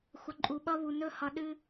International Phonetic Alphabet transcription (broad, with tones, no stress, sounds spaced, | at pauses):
xʷ ʌ˨ ǃʼ u˨ ɓ ʌ˦ β u˨ n ɵ˦ h ʌ˨ ɗ ɨ˦